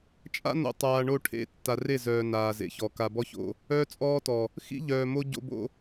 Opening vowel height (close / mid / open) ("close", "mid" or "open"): open